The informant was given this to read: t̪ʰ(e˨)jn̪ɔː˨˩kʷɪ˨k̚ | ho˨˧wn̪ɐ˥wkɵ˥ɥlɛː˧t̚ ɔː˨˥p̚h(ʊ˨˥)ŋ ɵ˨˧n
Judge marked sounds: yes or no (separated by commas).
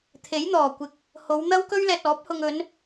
no, no